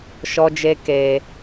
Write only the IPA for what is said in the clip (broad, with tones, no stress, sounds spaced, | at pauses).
ʃ ɔ˧ d͡ʒ e˧ k e˧